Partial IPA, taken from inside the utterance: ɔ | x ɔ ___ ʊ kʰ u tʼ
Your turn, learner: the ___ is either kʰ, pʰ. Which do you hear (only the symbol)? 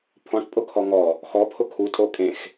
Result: pʰ